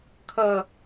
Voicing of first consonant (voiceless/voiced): voiceless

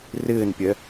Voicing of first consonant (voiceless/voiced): voiced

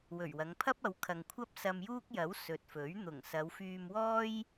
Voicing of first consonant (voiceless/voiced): voiced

